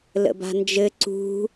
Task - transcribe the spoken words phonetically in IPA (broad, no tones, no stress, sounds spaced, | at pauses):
l ə̰ b a̤ n d͡ʒ ɘ ǀ ṳ